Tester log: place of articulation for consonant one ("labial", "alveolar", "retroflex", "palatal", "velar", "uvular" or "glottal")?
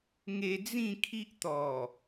velar